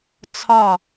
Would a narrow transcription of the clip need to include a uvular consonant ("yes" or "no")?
no